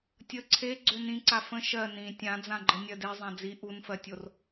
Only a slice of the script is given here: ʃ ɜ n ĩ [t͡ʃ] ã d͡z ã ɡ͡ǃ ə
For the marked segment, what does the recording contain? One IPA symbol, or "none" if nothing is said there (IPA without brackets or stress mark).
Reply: tʲ